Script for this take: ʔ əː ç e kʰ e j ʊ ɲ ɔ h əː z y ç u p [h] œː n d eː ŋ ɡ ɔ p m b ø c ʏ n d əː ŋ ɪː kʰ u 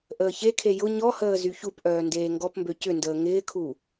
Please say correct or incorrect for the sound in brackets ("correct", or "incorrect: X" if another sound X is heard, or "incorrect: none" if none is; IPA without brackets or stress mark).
incorrect: ʔ